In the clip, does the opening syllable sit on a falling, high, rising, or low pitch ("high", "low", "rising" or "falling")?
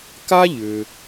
high